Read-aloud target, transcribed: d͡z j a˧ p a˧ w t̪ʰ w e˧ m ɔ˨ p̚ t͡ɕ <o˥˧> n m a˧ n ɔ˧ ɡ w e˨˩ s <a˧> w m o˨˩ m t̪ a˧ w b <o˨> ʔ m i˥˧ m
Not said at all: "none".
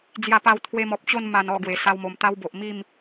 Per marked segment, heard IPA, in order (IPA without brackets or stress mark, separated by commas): o˥˧, a˧, o˨